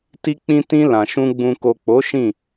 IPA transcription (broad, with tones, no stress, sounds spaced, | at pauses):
t i˧ k͡p ĩ˧ t ĩ˧ l ã˨ ʃ ũ˧ ɡ͡b ũ˨ k o˨ k͡p o˨˦ ʃ ĩ˦˨